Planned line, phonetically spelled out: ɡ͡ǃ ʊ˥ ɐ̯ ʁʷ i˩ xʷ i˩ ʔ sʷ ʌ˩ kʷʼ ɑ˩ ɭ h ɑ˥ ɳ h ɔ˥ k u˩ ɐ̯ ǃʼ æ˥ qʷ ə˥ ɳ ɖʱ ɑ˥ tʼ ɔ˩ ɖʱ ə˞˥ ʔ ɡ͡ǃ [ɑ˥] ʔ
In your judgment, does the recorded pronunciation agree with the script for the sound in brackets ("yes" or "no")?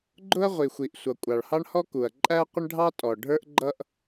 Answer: no